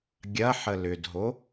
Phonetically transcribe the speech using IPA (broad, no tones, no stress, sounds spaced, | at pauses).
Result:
ɡʲ ɐ ħ ə l ʏ d ɦ o